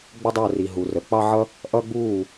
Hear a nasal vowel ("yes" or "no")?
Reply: no